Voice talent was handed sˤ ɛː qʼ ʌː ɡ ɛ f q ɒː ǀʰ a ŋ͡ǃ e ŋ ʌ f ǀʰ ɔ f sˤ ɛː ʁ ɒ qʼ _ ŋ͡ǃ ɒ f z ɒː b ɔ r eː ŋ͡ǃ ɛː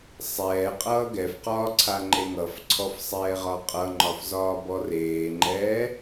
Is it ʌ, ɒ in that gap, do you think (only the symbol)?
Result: ʌ